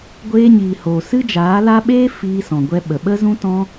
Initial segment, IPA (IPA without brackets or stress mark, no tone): ɡʷ